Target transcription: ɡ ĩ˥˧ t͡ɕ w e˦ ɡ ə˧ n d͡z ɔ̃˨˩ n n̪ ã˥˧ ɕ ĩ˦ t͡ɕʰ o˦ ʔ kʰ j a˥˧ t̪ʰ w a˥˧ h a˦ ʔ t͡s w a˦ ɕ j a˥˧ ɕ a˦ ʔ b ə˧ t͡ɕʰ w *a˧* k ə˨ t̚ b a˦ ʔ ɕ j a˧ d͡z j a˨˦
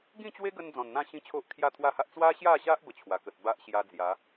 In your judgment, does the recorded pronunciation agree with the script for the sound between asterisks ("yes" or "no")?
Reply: no